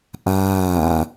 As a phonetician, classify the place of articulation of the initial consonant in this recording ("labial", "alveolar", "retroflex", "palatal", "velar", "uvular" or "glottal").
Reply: glottal